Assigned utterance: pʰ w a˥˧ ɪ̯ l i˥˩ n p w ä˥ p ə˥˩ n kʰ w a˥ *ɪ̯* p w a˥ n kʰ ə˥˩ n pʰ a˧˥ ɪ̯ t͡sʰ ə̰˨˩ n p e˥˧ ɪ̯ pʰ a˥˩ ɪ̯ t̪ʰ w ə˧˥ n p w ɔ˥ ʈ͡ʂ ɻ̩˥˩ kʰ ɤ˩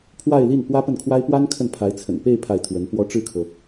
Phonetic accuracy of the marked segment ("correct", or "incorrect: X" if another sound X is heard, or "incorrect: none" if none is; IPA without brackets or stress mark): correct